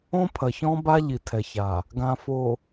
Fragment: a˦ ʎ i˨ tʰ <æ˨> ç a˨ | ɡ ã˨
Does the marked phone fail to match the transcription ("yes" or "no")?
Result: yes